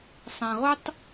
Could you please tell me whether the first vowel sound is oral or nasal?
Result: nasal